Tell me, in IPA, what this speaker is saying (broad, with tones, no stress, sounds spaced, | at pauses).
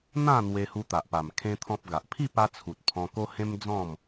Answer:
n̪ ã˥˧ n̪ w e˧ h u˧ t̪ a˨ ʔ p a˨˩ m kʰ ẽ˦ t̪ʰ ɔ̃˦ p̚ ɡ a˨ ʔ pʰ i˥˧ p a˧ t͡sʰ u˨ t̚ pʰ ɔ̃˧ k o˦ h ẽ˦ m d͡z ɔ̃˥˧ m